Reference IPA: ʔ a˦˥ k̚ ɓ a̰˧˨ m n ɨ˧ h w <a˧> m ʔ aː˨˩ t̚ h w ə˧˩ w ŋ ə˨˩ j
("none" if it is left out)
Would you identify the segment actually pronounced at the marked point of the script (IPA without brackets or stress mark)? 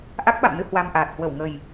a˧